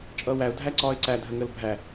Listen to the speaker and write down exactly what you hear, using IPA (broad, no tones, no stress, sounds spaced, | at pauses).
t͡ʃʼ ʌː w æ ʊ̯ dʱ æ ǀ ɒː ɪ̯ ǀ æ dʱ ə ŋ əː l bʱ æ